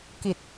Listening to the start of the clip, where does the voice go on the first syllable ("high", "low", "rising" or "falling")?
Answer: low